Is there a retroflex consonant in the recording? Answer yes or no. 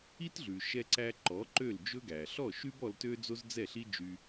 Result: no